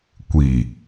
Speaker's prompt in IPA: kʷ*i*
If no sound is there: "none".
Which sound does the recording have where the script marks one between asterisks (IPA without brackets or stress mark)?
i